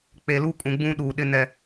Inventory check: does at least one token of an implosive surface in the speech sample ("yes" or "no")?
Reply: yes